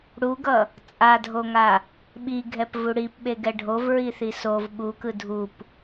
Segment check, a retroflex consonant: present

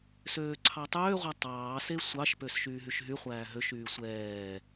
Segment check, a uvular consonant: present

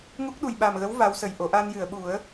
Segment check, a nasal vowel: absent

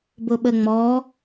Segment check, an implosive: present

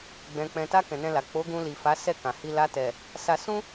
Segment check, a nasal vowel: present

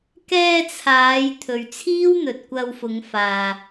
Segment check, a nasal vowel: absent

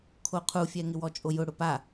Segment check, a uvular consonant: present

